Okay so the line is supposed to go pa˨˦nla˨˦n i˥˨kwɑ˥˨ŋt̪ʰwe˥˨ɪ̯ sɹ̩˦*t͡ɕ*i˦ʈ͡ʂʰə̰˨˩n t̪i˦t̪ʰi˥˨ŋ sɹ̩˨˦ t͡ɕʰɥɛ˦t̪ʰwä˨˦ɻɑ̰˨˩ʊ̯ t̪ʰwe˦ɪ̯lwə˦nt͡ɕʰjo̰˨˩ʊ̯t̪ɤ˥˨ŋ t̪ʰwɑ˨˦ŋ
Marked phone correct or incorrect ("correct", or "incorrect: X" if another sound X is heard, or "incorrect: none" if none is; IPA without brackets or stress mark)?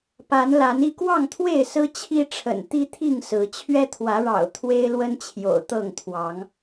incorrect: t͡ɕʰ